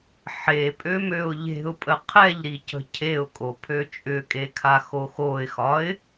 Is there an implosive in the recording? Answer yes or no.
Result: no